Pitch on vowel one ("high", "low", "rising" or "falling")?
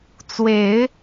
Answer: rising